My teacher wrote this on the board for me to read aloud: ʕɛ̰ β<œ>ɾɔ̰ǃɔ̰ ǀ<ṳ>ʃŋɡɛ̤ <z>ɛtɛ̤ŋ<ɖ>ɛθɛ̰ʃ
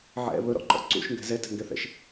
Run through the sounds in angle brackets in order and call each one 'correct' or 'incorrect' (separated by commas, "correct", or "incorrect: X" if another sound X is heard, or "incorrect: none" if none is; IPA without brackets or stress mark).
incorrect: ɵ, incorrect: ṵ, correct, incorrect: ɡ